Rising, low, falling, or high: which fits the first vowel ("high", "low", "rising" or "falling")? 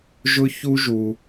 high